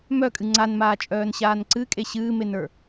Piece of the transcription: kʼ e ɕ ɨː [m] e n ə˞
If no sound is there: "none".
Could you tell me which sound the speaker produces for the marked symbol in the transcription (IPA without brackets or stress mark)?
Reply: m